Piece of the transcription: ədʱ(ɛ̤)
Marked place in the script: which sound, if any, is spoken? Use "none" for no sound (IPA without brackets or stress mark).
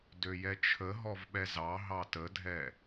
ɛ